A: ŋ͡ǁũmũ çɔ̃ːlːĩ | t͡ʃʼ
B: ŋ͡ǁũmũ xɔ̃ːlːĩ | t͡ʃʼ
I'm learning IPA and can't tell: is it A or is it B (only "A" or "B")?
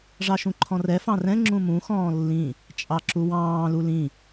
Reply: B